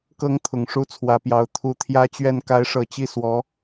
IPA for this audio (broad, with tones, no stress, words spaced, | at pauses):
kɤ˧˥ŋ t̪ʰʊ˨˩ŋʂu˥t͡sʰwä˧˥pjɑ˧˥ʊ̯ t̪ʰu˧˥t̪ʰjä˥t͡ɕɥɛ˥˩n ka˧˥ɪ̯ʂɤ˨˩t͡ɕi˥˩swɔ˧˥